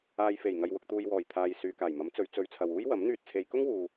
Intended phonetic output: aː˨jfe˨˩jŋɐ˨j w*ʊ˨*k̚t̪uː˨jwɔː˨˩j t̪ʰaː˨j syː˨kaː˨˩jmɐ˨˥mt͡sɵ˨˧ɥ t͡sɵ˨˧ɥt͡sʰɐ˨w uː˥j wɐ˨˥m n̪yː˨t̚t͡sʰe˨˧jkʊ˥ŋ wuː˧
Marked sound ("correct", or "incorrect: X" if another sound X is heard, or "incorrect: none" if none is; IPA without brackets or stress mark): correct